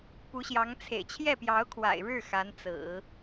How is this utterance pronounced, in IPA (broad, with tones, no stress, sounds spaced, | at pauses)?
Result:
p u˧˥ ɕ j ɑ˧˥ ŋ t͡sʰ ḛ˨˩ ɪ̯ t͡ɕʰ j ɛ˥˩ p j ɑ˧˥ ʊ̯ kʰ w a̰˨˩ ɪ̯ ɻ ɻ̩˥˩ x a˧˥ n t͡s ɹ̩˨˩˦